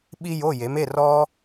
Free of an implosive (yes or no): no